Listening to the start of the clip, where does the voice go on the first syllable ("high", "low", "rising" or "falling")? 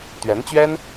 rising